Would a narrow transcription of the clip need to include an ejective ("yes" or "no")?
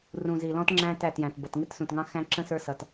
no